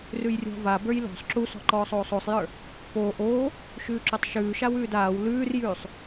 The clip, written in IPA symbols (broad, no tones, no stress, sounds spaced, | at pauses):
r ʉ j rʲ ɔ̤ v a b ə˞ j l ɔ̤ sˤ ǁ u s ɔ̤ ǃ ɔː sˤ oː sˤ o sˤ j ə˞ | p oː ʔ oː | ʃ ʉː ǁ o tˤ ʃ ʉː ʃ a w ʉː d aː w l ʉː r j ʉː sˤ